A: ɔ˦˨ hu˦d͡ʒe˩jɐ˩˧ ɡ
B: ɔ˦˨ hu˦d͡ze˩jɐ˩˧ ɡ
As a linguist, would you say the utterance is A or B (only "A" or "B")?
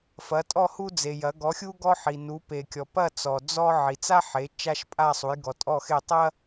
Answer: B